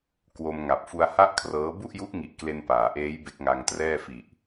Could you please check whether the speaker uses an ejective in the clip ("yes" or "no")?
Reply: no